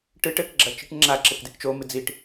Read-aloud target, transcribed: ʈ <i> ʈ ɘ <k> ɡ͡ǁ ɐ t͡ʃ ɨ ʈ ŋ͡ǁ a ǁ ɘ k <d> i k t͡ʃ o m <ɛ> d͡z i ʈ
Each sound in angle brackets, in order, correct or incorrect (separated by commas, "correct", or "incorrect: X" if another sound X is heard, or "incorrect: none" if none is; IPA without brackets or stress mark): incorrect: ɨ, correct, correct, incorrect: ɨ